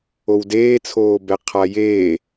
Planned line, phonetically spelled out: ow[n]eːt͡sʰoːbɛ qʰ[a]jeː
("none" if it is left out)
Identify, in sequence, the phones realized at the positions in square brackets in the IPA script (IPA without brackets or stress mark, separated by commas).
d, a